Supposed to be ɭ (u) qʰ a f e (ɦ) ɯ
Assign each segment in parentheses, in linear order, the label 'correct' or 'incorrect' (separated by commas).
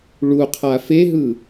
correct, correct